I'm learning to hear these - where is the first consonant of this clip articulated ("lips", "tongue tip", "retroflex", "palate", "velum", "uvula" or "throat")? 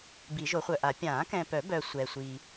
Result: lips